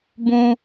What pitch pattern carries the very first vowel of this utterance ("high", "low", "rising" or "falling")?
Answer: high